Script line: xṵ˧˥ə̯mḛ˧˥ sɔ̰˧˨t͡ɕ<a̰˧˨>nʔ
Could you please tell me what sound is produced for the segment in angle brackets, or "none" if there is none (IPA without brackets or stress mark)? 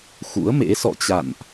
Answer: a̰˧˨